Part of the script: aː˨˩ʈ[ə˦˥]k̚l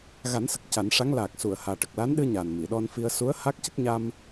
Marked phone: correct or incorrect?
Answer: incorrect